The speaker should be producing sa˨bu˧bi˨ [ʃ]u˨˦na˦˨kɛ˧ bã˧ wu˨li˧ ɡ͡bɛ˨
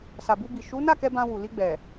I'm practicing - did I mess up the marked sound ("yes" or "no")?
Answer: no